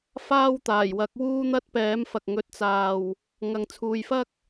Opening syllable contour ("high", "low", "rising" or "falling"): high